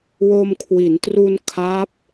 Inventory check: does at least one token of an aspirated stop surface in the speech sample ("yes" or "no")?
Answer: yes